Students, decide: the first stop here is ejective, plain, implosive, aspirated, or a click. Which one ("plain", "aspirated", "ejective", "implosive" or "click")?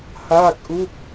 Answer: plain